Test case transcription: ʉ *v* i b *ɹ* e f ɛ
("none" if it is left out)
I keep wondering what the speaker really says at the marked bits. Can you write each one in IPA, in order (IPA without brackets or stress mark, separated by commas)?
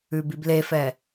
b, l